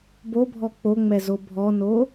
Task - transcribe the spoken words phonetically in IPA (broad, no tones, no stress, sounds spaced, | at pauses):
b o bʱ ɔ k͡p o ŋ͡m ɛ z o bʱ ɔ n o